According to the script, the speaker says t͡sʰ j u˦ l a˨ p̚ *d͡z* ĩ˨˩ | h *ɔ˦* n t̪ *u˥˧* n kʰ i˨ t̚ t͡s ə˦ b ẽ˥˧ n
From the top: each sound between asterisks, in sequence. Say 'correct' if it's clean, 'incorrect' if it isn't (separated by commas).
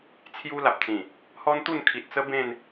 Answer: incorrect, correct, correct